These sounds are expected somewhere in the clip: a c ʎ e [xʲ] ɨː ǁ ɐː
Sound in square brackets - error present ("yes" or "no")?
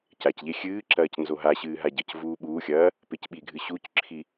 no